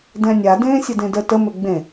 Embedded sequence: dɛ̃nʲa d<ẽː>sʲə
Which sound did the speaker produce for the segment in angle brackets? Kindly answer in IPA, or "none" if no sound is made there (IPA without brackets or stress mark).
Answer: ẽː